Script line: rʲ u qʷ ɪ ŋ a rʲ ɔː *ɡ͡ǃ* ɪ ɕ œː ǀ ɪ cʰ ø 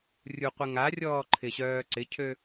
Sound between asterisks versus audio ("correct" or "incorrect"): incorrect